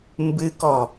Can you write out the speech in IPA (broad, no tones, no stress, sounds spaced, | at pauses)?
m b ɨ k ɔ